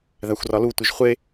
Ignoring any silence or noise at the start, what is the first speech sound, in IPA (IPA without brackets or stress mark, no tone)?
ð